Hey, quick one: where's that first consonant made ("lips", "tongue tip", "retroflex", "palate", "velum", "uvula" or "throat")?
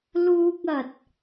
tongue tip